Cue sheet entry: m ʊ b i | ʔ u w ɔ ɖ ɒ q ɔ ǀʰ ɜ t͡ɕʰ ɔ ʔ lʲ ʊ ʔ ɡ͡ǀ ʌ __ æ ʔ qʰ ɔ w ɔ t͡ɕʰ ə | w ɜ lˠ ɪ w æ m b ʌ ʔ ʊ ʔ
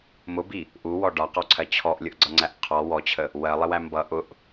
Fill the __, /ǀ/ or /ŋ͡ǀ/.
ŋ͡ǀ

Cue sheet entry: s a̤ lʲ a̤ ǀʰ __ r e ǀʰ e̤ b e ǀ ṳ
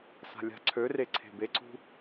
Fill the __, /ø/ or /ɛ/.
ø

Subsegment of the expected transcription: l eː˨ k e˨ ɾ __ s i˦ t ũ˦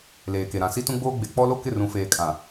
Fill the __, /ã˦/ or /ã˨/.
ã˨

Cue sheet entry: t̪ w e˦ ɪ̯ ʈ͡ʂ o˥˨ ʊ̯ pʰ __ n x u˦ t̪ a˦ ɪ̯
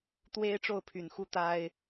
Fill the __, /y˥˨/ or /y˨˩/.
y˨˩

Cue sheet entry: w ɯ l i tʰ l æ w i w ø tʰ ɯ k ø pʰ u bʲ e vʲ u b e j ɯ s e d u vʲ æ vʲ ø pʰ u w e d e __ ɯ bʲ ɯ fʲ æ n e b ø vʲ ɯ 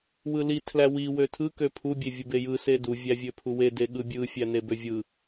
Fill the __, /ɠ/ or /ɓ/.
ɠ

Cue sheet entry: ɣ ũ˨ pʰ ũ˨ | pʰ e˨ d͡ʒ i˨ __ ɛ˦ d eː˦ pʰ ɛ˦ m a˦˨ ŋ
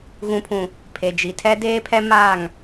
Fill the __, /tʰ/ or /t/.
tʰ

